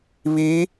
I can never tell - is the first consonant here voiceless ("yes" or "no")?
no